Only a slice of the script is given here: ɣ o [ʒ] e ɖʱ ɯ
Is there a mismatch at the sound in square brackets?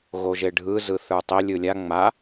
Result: no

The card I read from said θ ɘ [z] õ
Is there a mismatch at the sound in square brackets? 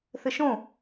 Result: yes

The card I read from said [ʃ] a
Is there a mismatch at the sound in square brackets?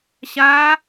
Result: yes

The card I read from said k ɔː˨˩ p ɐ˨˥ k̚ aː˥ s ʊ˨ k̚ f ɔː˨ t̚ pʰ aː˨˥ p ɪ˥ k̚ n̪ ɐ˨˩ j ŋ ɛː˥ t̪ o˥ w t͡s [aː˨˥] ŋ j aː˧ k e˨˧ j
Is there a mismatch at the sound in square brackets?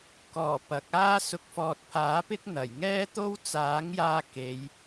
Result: no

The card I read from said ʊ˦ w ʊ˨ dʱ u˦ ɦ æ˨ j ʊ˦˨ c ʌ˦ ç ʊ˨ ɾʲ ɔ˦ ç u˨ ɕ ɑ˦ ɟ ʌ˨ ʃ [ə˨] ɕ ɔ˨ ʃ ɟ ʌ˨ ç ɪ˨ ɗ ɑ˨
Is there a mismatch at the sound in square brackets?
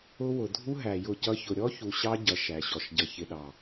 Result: yes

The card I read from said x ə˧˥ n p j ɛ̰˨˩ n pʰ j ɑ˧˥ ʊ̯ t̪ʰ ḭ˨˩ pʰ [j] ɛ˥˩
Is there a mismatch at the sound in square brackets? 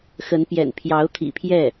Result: no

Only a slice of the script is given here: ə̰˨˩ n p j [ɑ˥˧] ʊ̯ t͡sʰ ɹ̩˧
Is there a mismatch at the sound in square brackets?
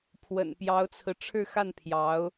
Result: yes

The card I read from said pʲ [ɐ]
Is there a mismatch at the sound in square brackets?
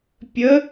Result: yes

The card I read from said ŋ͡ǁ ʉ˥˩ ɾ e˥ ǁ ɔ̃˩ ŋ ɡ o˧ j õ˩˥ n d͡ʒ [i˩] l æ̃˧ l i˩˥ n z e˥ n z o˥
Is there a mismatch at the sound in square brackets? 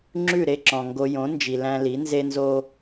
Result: no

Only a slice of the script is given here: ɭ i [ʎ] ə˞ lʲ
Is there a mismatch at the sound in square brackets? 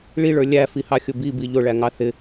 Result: yes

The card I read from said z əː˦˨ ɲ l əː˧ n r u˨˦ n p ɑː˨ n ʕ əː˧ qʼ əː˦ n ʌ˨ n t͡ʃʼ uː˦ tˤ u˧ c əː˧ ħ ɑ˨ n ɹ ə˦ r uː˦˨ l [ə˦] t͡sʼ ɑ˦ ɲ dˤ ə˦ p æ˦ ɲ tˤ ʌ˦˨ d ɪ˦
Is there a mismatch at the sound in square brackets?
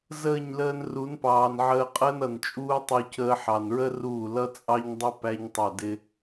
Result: yes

